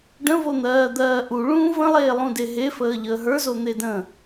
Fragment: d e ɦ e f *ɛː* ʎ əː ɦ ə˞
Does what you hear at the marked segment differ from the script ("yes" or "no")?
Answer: yes